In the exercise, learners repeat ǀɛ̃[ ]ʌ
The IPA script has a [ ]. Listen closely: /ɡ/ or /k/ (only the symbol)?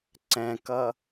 k